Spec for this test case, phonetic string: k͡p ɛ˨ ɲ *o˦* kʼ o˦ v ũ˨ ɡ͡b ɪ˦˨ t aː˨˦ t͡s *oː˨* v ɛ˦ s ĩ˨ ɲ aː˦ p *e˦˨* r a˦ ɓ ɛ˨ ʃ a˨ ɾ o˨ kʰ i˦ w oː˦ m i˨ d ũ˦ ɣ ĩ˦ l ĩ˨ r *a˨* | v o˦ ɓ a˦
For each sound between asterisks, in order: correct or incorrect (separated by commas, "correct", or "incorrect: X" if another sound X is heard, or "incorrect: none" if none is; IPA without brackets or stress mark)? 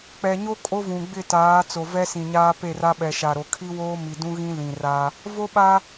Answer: correct, incorrect: o˨, correct, incorrect: a˦